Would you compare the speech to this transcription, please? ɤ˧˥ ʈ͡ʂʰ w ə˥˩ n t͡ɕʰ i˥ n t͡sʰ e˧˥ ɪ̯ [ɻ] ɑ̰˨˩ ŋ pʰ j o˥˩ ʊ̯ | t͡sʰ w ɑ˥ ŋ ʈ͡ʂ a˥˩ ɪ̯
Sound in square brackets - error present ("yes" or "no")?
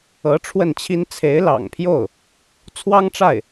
yes